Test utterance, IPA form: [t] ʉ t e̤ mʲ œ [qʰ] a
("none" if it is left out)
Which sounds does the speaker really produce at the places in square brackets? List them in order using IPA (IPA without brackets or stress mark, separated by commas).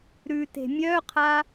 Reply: ɾ, qʰ